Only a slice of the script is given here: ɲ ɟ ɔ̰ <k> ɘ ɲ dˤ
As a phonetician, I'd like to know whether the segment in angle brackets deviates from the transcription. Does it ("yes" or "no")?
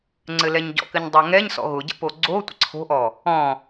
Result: no